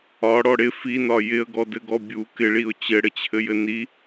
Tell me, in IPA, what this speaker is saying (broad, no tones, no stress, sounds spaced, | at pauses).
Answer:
ɒ ɽ ɔ ɽ ɪ f i n ɒ j ɪ ə̯ ɡ ɔ d ɘ ɡ ɔ bʲ u k ɪ ɭ i ʊ̯ t͡ɕ ɘ ɽ ɘ t͡ɕʰ ɘ j ɘ n i